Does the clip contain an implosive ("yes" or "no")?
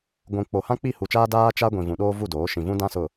yes